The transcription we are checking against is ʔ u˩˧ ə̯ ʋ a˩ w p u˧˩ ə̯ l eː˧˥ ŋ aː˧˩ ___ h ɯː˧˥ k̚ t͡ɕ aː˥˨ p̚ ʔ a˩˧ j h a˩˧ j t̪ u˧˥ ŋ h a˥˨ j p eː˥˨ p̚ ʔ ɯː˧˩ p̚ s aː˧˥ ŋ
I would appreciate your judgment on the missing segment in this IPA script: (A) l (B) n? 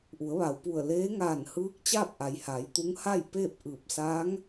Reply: B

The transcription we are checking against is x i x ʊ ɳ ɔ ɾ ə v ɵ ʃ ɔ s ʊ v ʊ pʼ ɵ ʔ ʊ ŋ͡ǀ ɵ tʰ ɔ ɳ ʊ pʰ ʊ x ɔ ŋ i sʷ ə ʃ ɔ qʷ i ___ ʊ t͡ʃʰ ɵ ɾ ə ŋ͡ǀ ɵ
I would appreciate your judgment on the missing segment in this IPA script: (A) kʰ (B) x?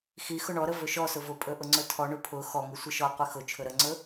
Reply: B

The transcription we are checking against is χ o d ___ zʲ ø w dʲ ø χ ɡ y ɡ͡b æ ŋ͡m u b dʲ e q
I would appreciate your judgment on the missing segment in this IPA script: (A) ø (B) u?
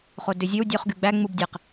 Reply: A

